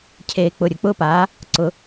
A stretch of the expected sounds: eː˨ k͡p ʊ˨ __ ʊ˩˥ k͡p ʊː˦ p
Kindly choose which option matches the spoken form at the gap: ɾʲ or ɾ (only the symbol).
ɾʲ